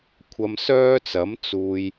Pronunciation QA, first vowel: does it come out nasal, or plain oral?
oral